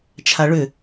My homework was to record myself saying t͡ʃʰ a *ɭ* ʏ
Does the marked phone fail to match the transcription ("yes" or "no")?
no